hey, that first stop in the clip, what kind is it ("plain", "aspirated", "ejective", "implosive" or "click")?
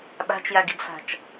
implosive